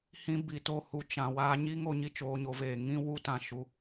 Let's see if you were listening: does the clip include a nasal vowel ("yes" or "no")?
yes